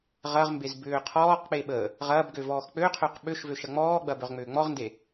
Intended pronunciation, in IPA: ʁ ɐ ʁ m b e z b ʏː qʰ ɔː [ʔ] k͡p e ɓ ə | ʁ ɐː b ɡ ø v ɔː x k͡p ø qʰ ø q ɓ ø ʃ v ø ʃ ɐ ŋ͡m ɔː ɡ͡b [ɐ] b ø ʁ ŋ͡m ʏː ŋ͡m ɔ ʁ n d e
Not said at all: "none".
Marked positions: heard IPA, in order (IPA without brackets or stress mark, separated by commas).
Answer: q, ɐ